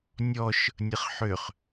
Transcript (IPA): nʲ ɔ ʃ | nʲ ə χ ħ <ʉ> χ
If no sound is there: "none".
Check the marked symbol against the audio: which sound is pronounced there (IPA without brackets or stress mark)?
ø